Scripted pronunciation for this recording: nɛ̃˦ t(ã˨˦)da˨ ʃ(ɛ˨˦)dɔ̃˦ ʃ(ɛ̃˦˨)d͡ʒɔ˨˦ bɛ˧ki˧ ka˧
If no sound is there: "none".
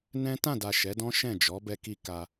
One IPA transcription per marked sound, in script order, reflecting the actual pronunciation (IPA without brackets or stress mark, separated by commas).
ã˦˨, ɛ˨˦, ɛ̃˦˨